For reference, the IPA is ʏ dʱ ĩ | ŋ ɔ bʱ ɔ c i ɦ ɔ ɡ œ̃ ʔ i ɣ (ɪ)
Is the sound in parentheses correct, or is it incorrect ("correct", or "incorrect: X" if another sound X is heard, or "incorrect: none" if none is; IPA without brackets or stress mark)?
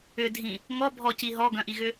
incorrect: ʏ